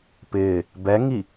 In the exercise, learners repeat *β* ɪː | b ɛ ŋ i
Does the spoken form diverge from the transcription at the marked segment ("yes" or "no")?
yes